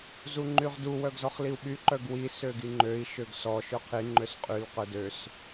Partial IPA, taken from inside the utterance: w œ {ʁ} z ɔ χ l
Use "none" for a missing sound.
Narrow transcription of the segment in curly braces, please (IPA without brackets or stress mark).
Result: ɡ